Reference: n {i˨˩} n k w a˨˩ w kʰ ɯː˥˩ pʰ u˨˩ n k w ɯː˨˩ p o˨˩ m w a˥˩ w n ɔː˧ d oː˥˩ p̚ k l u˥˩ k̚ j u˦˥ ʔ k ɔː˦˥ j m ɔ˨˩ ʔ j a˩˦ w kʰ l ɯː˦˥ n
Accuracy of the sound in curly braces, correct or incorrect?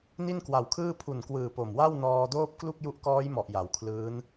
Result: incorrect